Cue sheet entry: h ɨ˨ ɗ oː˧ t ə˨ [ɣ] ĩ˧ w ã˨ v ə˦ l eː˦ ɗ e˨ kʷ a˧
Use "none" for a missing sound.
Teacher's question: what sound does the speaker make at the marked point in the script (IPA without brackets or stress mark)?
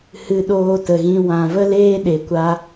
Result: ɣ